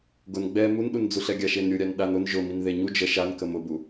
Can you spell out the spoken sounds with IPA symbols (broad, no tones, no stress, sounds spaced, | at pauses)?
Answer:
ɡ ʊ n ɡ͡b ɛ m u n ɗ u n d͡z u ɬ ɛ ɡʲ a ʃ e n ɾʲ u ɾʲ a n ɗ a n ʊ n ʒ ʊ m i n ð e ɲ u d͡ʒ ə ʃ a n k ə m ʊ b u